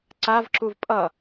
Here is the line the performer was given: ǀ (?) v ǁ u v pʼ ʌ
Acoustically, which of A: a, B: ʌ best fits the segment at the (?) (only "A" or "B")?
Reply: A